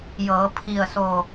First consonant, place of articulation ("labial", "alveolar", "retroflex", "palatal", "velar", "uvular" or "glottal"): palatal